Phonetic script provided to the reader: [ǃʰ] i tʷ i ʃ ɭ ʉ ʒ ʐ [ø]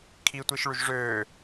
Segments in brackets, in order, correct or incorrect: incorrect: kʰ, incorrect: øː

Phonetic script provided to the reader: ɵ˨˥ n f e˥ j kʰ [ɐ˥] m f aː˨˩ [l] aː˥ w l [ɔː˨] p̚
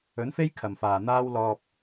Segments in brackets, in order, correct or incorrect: incorrect: ɐ˨˩, incorrect: n̪, incorrect: ɔː˧

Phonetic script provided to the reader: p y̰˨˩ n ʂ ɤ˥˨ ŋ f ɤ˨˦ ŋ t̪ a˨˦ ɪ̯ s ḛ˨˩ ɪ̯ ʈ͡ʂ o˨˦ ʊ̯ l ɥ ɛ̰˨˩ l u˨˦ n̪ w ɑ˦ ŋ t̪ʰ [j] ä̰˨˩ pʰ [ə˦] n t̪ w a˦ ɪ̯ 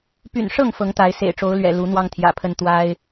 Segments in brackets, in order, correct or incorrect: correct, correct

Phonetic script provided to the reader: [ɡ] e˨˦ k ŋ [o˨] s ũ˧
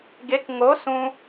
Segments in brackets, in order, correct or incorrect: correct, incorrect: o˨˦

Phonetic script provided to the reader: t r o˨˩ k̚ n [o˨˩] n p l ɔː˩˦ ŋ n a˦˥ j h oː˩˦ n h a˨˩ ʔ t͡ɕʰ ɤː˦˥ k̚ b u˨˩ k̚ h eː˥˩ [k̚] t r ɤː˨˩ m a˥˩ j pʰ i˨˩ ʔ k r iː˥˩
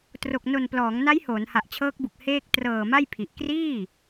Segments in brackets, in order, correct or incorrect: correct, correct

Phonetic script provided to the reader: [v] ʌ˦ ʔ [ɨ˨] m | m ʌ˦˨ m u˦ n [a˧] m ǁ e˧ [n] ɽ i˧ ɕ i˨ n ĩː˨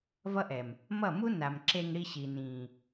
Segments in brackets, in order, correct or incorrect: correct, incorrect: ɛ˨, incorrect: a˨, incorrect: ŋ

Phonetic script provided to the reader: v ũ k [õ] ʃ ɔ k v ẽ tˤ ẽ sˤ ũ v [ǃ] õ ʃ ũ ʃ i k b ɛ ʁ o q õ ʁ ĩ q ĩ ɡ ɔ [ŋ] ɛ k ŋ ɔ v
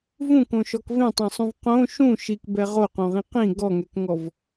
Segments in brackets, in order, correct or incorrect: correct, incorrect: q, correct

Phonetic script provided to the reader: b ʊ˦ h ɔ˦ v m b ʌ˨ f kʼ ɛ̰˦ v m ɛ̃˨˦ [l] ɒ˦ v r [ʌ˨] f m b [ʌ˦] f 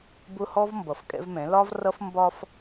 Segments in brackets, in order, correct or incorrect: correct, incorrect: ʌ˦, incorrect: ɒ˦

